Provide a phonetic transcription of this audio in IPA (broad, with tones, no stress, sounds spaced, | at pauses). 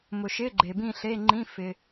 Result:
m ʊ˨ ʃ ɪː˧˥˧ ɡ͡ǃ e˨ b ĩ˥˧ ɬ e˧˥˧ ŋ͡ǃ ĩ˧˥˧ f ɪ˨